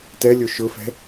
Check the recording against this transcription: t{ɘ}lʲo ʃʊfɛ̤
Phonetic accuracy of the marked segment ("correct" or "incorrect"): incorrect